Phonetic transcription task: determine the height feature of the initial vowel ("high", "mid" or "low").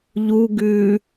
high